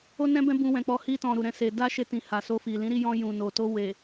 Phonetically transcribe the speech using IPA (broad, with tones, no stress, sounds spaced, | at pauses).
o˦ n ɛ̃˦ b ɛ̃˦ b ũ˧ w ɛ̃˨ k͡p ɔ˧ h i˧ t ɔ̃˨ ɾ u˨ ɾ ɛ̃˧ s e˨ d a˧ ʃ e˧ t ĩ˨ h a˨ s o˧ f i˨ l ĩ˨˦ ɾ i˦˨ j ɔ̃˧ j ũ˨ n o˨ t o˧ w e˨